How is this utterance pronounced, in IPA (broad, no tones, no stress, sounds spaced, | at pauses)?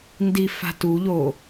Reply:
n d i f a̤ t u ʎ o